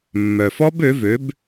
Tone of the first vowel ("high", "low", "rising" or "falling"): low